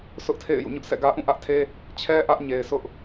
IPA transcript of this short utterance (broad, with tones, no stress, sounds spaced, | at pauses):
s ʊ˦ ʔ tʰ ḛ˦˨ ɪ̯ j ṵ˦˨ ɲ ʊ˦ ʔ s ɛ̰˦˨ ɡ ä˦ ʔ ũ˦˨ ʔ ä˦ ʔ tʰ e˦ | t͡ɕʰ ɛ˦ ʔ ä˦ ʔ ɲ e˨ ɪ̯ s ʊ˦ ʔ